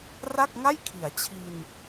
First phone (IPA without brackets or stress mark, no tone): r